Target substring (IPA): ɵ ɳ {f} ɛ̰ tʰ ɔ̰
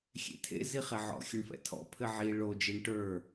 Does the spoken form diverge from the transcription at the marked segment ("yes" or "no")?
no